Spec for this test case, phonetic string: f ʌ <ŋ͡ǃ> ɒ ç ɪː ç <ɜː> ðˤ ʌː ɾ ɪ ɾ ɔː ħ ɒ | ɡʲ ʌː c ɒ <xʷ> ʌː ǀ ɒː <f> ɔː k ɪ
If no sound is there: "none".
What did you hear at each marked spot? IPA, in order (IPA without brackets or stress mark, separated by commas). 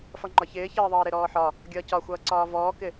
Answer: ŋ͡ǃ, ɜː, xʷ, v